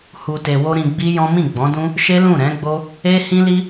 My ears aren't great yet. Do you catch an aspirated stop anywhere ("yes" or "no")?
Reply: no